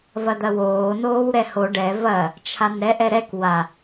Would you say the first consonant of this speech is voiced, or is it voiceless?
voiced